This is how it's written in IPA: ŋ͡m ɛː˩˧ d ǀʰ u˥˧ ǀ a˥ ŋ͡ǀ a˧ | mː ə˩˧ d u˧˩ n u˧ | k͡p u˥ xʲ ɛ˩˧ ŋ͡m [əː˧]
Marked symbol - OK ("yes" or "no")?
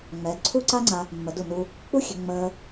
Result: yes